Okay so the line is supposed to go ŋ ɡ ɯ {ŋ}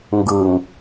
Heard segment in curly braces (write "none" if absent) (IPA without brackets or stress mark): ŋ